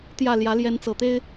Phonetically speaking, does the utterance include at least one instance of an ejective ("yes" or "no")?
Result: no